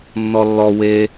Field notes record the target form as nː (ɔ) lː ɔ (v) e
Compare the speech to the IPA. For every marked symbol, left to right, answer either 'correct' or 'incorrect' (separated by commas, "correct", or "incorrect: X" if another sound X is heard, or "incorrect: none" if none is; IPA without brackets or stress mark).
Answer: correct, incorrect: w